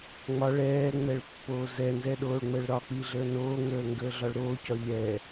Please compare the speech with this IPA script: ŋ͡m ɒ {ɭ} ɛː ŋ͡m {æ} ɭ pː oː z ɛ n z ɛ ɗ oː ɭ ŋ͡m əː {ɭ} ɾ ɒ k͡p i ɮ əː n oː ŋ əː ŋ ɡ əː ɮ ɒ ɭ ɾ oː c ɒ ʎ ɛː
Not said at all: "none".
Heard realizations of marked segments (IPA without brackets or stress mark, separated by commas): ɭ, ɛ, ɭ